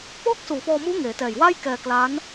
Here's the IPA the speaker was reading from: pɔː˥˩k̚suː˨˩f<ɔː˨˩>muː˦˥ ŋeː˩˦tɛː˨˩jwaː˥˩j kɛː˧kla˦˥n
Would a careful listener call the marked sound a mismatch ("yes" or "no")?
yes